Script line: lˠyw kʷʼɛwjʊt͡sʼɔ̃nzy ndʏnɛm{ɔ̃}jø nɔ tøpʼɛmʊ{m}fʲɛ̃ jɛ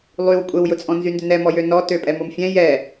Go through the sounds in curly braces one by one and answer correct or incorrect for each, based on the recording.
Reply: incorrect: ɔ, correct

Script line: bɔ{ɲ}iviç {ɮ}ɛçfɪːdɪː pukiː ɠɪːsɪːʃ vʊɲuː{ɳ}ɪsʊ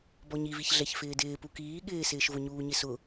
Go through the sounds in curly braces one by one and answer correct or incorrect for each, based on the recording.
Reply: correct, correct, incorrect: ɲ

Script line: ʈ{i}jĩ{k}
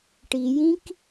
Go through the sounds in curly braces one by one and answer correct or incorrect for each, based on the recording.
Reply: correct, correct

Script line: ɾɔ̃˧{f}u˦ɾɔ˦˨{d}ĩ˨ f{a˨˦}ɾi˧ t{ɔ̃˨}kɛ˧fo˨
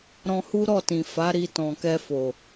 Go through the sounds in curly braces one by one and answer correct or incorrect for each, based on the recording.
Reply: incorrect: h, incorrect: t, correct, correct

